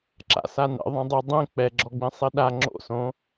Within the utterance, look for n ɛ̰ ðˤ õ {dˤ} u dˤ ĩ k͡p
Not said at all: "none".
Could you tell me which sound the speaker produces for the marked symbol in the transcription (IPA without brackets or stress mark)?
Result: dˤ